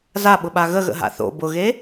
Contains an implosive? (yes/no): yes